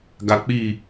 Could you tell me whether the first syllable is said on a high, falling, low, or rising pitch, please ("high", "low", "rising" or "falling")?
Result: low